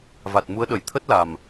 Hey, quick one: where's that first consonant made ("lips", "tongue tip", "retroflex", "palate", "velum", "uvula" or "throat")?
lips